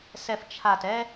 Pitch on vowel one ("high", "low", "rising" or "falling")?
low